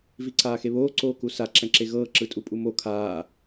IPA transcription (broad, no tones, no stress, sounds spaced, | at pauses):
v i ǀ aː x e β oː ǀ oː k u s a ǁ ɛ̃ ǁ e ɣ ɤː ǁ ɯ tʼ u pʼ u m o kʰ aː